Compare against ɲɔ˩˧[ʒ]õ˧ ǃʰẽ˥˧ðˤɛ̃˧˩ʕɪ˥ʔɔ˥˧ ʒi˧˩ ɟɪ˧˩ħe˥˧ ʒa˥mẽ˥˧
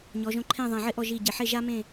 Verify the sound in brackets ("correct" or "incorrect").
correct